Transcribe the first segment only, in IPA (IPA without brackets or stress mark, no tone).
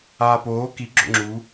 aː